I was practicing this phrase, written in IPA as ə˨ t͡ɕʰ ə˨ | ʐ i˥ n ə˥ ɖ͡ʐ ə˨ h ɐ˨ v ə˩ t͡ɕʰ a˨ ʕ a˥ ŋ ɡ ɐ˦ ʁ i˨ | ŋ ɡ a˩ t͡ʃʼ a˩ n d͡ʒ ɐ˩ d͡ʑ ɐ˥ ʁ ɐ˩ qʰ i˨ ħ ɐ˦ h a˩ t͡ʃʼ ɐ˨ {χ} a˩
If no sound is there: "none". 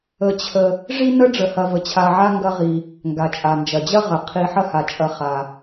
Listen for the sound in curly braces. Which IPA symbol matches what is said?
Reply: χ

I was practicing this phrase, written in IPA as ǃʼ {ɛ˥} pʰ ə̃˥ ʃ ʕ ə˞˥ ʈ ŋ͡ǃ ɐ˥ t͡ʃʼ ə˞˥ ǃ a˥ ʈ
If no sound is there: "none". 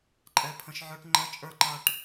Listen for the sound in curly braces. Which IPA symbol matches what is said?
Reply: ɛ˥˩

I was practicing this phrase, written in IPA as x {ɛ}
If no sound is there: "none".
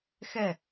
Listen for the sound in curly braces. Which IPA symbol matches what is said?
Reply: ɛ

